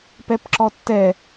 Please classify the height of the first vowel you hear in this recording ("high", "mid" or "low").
mid